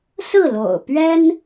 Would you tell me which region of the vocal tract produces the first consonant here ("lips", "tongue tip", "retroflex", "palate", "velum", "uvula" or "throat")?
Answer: tongue tip